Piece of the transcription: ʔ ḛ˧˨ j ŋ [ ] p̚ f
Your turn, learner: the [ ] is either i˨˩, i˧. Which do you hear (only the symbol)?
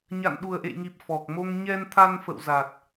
i˨˩